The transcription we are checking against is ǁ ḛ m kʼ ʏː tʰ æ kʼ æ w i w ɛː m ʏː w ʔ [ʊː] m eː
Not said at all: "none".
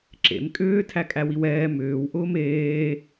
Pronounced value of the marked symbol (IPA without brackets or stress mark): ʊː